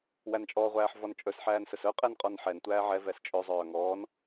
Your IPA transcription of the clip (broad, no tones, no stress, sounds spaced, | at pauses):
w æ n t͡ʃʼ ɔ ʁʷ æː ħ v ɔ n t͡ʃʼ ɵ s ħ æː n s ɵ s œ qʼ ɛ n qʼ ɔ n ħ ɛ n tʷ æː ʕ ɛ v ɛ s t͡ʃʼ ɵ zˤ œː ŋ ɔː n